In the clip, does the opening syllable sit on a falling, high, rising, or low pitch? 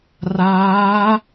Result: rising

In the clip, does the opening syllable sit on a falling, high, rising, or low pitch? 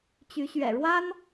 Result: rising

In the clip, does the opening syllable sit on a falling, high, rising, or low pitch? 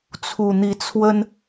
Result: low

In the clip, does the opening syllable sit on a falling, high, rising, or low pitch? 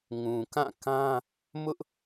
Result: low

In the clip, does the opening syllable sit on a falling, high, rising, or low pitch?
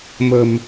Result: low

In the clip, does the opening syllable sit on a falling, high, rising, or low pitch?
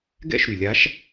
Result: falling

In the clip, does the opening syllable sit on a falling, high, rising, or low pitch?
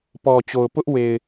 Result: low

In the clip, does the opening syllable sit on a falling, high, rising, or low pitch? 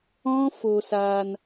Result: high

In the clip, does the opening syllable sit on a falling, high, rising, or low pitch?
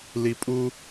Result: low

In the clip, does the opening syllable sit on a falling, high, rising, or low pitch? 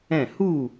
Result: falling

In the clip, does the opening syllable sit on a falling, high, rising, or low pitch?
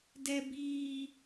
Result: high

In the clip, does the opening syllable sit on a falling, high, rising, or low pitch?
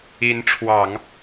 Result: rising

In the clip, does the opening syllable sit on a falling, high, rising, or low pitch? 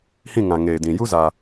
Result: falling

